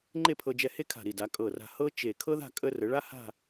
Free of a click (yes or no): no